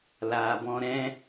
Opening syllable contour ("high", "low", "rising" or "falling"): low